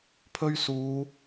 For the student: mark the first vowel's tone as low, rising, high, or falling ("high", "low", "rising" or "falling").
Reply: high